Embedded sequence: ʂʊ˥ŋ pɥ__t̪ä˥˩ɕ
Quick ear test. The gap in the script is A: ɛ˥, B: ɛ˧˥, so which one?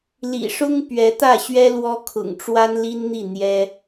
B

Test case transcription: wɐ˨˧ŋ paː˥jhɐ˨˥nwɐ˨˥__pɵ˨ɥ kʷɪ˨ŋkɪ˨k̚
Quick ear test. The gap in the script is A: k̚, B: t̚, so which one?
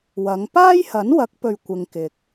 A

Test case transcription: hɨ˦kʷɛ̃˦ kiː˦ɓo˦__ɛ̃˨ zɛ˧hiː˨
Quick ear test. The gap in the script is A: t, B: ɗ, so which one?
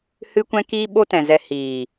A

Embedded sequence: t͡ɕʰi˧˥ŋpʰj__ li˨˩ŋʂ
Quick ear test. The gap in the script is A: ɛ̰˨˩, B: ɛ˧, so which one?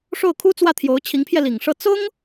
B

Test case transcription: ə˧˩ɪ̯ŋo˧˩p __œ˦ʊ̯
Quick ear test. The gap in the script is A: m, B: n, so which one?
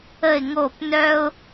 B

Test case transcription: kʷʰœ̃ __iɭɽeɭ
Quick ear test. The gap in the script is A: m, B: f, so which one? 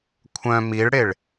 A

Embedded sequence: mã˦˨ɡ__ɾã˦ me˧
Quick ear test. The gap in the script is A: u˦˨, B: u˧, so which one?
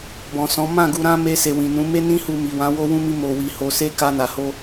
B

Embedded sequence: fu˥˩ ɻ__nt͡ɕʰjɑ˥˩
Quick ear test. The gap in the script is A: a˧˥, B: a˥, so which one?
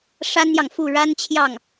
B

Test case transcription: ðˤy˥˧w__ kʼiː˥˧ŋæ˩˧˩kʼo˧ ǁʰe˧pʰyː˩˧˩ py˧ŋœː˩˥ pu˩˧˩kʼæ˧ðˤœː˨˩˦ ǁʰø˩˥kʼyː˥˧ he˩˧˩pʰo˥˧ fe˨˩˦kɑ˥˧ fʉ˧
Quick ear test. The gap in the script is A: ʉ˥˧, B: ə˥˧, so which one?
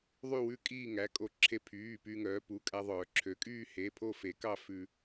A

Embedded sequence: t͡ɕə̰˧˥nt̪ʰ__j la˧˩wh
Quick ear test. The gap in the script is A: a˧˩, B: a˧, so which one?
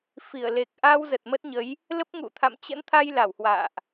B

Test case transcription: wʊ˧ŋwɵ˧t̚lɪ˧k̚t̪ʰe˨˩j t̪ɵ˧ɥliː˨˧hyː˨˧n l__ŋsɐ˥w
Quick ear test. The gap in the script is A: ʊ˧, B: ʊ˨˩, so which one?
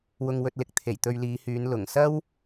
B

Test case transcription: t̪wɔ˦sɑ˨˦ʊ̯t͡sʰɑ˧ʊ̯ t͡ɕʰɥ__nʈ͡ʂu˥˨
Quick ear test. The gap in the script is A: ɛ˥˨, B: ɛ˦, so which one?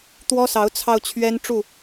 B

